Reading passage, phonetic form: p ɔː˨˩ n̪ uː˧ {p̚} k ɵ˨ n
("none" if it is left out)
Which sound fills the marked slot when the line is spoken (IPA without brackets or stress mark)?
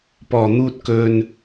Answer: t̚